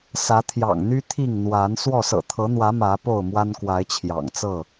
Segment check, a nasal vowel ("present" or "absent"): absent